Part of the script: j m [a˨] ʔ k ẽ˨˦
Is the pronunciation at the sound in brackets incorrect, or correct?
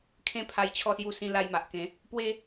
correct